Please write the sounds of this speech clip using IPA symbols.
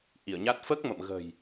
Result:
ʔ i˧˩ ə̯ ɲ a˦˥ t̚ f əː˦˥ k̚ m ə̰˧˨ m ɣ ə̤˨˩ j

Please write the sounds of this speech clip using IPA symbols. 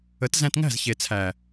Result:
ə˨˦ t z æ̃˧ t ŋ æ̤˦˨ z ç e˨ t͡sʰ æ˨

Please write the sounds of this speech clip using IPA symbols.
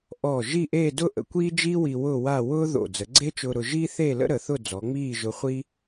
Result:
ʔ ɔː˧˩ ʒ i˥˧ ʔ eː˥˧ d ʊ˥ ʔ ə̰˧ kʷ iː˥ d͡ʒ iː˥ w i˧ w ʊː˥˧ w a˥˧ w ʊː˥ ð o̰˧˩ d͡z ə˩˧ ɡ͡ǀ e˥ t͡ʃ ʊː˧ ɾ ʊ˧ ʒ iː˥ θ eː˥˧ l ə̰˥ ɾ ə˩˧ θ ʊ˥˧ d͡z ɔ˩˧ ŋ͡m iː˥˧ ʒ ʊ˧ χʷ iː˥

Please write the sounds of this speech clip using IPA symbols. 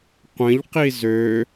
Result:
qʷ ə̃ ʎ q i z ø

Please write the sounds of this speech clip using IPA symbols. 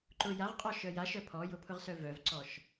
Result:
ǃ ʊ j a ʁ qʼ ɔ ʃ œ j a ʃ œ pʰ ɔ j ʊ pʰ ʊ ʁ s œ v œ v ǀ ɔ ʃ

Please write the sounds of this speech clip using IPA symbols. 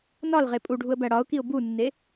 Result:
n ɒ l ʁ e pʼ u ɖʱ u ə̯ b æ ɽ ɒ ʊ̯ k i ʊ̯ b u nː e

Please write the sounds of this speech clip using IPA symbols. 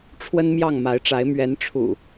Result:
ʈ͡ʂʰ w ə˦ n m j ɑ˥˨ ŋ m a˨˦ ɪ̯ ʈ͡ʂ a˨˦ ɪ̯ m ɥ ɛ˨˦ n ʈ͡ʂʰ ṵ˨˩

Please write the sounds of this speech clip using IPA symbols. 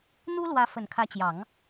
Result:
n̪ u˥ l w ä˧˥ f ə˨˩ n kʰ ä˧˥ t͡ɕ j ɑ˨˩˦ ŋ

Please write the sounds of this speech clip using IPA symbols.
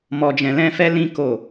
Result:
m ɔ˧ d͡ʒ ɛ̃˧ l ɛ̃˦ f ɛ˦ l ĩ˦ k o˦˨

